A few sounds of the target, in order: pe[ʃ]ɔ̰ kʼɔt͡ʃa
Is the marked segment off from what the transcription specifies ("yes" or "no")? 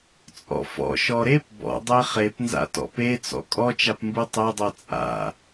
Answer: yes